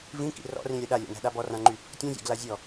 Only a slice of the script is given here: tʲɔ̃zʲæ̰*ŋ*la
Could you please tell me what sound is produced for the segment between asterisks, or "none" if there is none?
ɡ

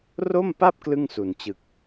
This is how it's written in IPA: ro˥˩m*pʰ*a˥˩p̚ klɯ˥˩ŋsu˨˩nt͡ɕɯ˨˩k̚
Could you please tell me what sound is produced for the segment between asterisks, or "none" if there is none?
p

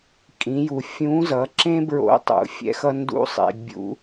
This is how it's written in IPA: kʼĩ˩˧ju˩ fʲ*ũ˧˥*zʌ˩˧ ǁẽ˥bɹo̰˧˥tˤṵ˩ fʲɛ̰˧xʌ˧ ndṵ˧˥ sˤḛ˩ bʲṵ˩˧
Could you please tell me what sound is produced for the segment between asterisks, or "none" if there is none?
ũ˧˥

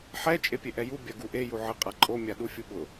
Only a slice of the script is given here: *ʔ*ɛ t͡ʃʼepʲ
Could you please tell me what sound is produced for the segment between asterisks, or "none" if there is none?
ħ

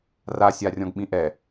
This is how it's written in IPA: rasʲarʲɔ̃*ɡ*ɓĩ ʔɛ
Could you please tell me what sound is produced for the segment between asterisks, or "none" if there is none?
ɡ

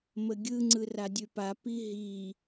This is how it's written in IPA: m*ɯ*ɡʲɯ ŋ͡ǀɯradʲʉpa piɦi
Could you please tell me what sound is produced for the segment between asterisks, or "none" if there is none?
ə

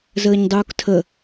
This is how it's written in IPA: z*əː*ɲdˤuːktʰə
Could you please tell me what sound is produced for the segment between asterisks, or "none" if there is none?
əː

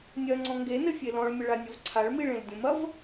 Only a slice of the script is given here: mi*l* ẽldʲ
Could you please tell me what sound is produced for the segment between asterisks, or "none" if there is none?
ɭ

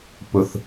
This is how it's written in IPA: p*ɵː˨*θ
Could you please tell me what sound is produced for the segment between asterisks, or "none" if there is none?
ɵ˨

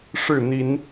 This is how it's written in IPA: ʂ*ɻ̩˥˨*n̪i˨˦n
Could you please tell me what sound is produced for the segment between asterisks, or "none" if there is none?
ɻ̩˥˨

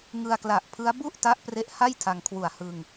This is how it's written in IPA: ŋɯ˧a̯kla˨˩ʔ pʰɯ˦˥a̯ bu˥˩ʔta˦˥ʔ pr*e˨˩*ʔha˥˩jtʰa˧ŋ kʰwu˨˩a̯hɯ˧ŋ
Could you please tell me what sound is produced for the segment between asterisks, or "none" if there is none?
e˦˥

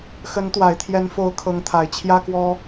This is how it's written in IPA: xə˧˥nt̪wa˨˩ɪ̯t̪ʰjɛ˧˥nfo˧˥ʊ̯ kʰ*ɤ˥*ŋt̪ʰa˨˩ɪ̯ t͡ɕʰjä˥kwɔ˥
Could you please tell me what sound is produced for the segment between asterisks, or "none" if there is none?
ɤ˧˥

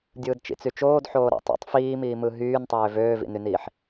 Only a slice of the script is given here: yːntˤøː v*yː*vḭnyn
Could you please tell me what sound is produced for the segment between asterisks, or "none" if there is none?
øː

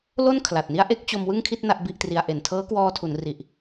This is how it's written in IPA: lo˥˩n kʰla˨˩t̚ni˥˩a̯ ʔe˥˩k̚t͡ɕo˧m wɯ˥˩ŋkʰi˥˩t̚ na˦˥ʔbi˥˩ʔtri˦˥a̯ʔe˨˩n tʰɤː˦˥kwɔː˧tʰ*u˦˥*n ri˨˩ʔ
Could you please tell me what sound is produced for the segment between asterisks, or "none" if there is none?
u˩˦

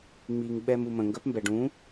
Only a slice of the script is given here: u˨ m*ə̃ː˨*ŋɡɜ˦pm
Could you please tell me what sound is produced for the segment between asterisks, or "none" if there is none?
ə̃ː˨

